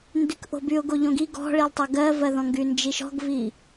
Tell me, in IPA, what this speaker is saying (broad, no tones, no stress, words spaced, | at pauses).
ndykʔo̤byʊ̯ ɡoʎõɡi ɡɔ̤ɭilˠ tˤɤɡɜvɜðɔ̃ ŋɡynd͡ʒiʃɔ̤ɡvi